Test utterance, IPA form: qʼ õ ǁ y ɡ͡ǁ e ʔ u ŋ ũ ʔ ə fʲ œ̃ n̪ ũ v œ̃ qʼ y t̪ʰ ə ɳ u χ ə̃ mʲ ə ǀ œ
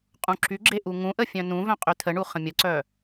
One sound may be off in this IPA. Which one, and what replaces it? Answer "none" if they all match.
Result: õ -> ũ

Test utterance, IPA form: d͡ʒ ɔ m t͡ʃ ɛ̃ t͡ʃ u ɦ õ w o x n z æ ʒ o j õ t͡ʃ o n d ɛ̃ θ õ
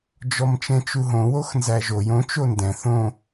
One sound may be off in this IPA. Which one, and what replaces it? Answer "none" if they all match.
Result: none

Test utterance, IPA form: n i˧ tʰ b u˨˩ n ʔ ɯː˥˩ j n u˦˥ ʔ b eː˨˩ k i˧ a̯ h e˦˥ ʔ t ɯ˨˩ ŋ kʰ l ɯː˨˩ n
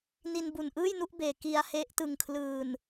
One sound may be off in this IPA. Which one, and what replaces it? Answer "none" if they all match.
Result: tʰ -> n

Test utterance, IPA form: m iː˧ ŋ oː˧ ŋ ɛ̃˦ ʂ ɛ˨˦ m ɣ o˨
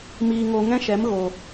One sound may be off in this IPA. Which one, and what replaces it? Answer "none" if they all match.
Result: ʂ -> ʃ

